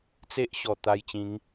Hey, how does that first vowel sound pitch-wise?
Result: high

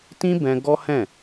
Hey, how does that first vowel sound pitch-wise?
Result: high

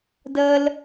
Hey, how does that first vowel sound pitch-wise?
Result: low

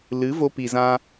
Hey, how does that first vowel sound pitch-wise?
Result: rising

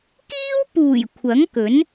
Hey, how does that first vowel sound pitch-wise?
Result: high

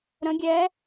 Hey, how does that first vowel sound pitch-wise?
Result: rising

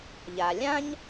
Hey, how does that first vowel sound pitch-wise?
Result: low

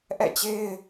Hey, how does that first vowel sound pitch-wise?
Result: falling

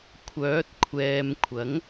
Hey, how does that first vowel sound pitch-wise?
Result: rising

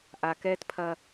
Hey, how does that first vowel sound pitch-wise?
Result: low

